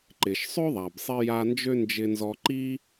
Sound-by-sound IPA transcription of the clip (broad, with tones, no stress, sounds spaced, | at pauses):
ǃ ɪ˩ ʃ sˤ ø˥ ðˤ a˩ b sˤ i˧ j a˧ n d͡ʒ ø˥ n d͡ʒ ɪ˧ n z ɔ˧ ǃ i˥